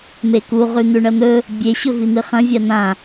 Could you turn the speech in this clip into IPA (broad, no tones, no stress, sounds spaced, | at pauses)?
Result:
m e k u ʁ ʉ n̪ ʉ ɳ ɐ n̪ ɵ | bʲ e ɕ ɵ v i n̪ ɨ χ ɐ̃ vʲ a n̪ ã